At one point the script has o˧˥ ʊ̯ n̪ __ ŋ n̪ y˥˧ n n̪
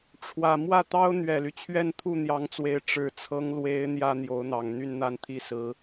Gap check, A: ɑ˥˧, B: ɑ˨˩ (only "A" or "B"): B